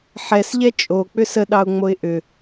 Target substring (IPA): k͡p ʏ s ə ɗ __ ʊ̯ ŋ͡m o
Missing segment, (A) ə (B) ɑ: B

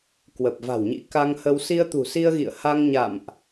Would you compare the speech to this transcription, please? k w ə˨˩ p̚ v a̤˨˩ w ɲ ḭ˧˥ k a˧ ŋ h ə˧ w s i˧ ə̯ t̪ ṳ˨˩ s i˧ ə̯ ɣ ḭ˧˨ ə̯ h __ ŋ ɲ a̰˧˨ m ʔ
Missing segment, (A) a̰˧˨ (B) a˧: B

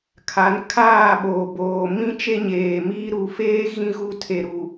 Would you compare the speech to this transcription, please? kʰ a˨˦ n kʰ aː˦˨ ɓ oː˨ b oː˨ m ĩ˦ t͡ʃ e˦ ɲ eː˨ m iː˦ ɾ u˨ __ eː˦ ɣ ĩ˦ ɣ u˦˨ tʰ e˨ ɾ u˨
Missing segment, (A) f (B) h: A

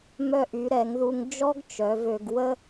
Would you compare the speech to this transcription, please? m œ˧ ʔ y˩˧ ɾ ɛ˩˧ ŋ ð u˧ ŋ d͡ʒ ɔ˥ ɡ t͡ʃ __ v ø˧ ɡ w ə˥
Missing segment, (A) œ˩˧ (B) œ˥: A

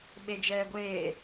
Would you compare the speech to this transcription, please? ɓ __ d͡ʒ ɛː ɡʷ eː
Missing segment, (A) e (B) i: A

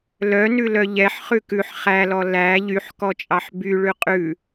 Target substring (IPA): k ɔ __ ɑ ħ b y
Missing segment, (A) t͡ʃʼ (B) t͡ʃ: A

